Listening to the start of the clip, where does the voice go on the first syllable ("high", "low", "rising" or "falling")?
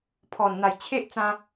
low